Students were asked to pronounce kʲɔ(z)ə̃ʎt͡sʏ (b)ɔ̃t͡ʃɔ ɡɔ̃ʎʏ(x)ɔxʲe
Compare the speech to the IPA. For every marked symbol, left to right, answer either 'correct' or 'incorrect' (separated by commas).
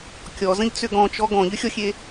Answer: correct, incorrect, incorrect